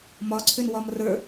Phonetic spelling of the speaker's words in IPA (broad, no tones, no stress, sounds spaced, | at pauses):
m ɒ ǀʰ ʏ n w ɒ m r ə˞